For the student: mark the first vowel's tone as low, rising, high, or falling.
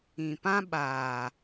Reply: low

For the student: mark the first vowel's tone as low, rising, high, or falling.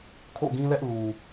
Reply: falling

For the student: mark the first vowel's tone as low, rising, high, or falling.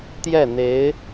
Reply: falling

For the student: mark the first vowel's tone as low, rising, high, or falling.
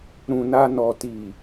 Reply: low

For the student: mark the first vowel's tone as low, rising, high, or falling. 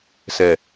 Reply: low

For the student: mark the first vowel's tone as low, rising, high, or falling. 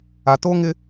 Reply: high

